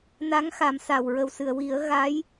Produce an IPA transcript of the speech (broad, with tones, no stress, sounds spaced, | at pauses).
n a˧˥ ŋ x a˨˩˦ m s a˨˩ w ɹ ə˨˩ w s ɨ˨˩˨ ə̯ w i˨˩˦ ə̯ ɣ a˧˥ j